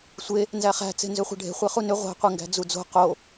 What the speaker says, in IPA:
sʷe | nzæχæ̤t͡se̤nzʏ χʷæ̤ɖʱe̤ χʷeχunʏ ʁʷæ̤qʷeŋɡæ̤ d͡zud͡zo̤ qo

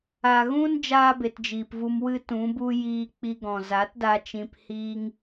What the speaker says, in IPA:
a˨ɣũ˦n d͡ʒaː˦be˨td͡ʒiː˨pvu˧m wɨ˦tũ˨˦bu˦ jiː˧k͡pi˧ɡɔ̃˨ za˨˦tda˧ t͡ʃĩ˧p hiː˦ŋ

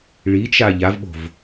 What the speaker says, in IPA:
ɭit͡ʃa ʎavɓo̤v

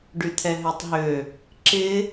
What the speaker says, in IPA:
ɖyt̪ʰɛɦøtˤɦø | ǁɪ

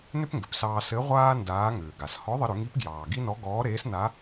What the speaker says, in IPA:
nʏ˥pŋɡʏ˩psɑː˧ sɘ˧˥ʁʷaː˥ ndaː˧˥ŋʏː˩ɡa˩s hɔ˧˥ðˤɘ˧ɾʏ˩˧ŋi˧˥p ɡjɑː˩ɡi˥nɔ˧˥ ɡɔː˧˥ɾeː˧˥s na˧˥

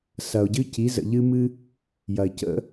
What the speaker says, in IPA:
sɐ˩ʊ̯ɟɨ˧ci˩˧ zə̰˩ʎɨ˧mɨ˧ | jɐ˩ɪ̯cə̰˧

